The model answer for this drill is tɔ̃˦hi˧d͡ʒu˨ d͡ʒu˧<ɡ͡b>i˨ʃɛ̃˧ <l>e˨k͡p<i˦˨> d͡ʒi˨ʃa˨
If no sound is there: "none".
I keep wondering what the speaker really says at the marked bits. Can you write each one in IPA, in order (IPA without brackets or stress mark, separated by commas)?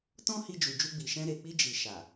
ɡ͡b, ɾ, i˧